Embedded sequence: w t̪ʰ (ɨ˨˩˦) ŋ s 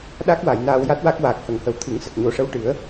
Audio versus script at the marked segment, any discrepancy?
no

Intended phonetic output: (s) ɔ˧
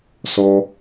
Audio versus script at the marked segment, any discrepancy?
no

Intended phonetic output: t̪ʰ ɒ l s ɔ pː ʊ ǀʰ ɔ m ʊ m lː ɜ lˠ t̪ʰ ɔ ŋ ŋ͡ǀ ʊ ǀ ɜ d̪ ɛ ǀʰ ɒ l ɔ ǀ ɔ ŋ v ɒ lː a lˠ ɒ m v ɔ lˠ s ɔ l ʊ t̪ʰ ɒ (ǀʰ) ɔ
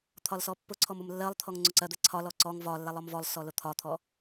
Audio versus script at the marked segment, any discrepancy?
yes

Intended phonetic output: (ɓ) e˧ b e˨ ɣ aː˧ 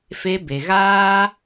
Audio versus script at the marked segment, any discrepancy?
yes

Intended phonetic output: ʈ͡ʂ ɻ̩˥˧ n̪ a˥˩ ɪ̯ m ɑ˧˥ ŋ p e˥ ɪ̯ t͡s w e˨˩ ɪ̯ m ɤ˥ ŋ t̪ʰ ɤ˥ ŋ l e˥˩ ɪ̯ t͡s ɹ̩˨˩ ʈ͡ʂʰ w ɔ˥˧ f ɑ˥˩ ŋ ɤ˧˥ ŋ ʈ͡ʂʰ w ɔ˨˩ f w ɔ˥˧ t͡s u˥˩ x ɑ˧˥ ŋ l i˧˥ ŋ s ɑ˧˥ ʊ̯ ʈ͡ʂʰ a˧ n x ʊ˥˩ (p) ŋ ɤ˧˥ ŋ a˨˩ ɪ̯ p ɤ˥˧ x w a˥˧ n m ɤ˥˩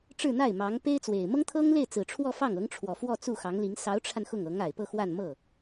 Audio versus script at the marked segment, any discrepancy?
yes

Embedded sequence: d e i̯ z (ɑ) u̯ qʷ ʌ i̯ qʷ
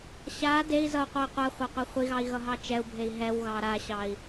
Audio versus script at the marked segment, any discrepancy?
yes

